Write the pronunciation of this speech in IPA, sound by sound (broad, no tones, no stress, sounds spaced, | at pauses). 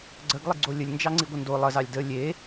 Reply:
ɡ͡ǀ ə ɡ lˠ i ɡ͡ǀ o lʲ ə lʲ n d͡ʒ ɑ ŋ͡ǀ i ɡʷ ə n d o lˠ ə z ɑ lʲ d ə lʲ e